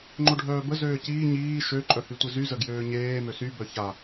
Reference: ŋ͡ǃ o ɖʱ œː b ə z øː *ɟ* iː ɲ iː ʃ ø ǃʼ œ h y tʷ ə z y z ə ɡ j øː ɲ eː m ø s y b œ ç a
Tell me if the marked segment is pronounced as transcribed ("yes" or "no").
no